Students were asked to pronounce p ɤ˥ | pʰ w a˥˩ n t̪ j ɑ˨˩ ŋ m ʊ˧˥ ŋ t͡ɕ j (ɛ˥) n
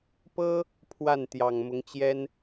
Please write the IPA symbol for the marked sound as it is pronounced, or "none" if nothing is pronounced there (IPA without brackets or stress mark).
ɛ˥